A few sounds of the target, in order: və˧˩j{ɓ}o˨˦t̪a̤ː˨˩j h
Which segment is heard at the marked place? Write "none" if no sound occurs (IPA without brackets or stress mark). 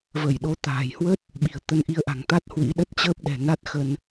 ɗ